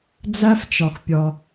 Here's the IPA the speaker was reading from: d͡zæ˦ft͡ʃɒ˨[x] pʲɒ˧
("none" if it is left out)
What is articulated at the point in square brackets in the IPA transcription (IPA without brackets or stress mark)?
x